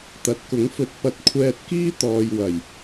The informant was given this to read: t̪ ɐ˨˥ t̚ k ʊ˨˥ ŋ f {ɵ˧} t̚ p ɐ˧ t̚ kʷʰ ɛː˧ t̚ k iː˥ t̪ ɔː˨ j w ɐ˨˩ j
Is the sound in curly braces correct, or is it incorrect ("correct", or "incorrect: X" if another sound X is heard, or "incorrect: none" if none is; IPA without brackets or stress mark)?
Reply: correct